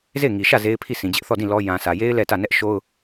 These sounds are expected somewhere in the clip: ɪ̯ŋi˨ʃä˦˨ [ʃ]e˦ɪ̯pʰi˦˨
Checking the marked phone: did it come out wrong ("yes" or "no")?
yes